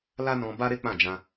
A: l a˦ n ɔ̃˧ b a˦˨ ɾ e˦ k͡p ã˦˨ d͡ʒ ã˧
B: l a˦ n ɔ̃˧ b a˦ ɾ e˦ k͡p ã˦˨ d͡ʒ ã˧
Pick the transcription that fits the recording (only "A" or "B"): B